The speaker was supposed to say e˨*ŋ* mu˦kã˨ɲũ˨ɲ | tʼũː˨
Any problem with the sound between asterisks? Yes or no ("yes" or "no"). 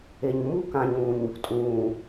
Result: yes